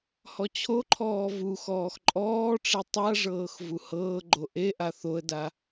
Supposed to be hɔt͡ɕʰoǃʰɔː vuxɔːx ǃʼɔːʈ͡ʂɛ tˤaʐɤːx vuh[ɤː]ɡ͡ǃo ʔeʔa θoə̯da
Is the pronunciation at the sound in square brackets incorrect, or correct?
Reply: correct